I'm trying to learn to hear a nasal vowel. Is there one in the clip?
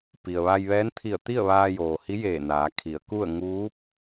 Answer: no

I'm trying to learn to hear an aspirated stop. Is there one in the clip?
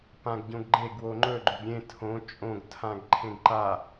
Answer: yes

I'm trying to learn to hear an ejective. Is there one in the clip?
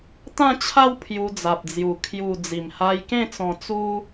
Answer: no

